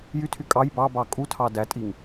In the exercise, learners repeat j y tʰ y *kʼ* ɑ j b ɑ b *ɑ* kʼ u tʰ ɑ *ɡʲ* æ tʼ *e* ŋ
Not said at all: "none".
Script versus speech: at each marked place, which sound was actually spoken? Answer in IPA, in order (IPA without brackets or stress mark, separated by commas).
kʼ, ɑ, d, i